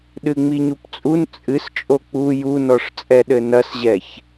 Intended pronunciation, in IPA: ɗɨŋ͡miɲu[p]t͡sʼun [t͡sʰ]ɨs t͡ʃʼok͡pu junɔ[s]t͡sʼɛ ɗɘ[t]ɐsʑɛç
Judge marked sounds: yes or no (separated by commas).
yes, no, no, no